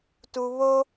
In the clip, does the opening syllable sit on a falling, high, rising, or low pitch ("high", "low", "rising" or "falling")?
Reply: low